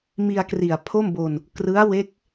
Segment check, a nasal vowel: absent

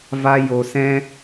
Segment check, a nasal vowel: present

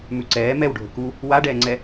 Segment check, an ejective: absent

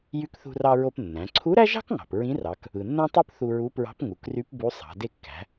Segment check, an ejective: absent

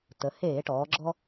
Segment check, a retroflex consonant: present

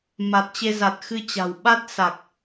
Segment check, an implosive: present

